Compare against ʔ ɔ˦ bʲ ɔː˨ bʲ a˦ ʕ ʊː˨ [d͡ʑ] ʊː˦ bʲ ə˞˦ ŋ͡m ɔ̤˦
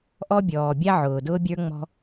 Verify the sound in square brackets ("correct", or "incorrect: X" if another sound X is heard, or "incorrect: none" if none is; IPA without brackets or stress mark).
incorrect: d